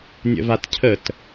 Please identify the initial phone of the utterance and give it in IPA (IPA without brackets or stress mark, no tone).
nʲ